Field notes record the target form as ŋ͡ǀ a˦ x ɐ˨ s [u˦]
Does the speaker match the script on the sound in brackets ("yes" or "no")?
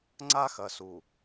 no